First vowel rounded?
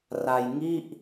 no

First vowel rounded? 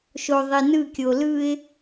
yes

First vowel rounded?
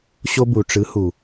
yes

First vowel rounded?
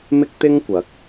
no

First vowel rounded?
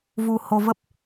yes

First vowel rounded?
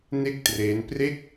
no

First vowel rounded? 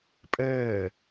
no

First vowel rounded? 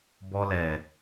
yes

